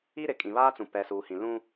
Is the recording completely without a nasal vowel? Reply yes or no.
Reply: no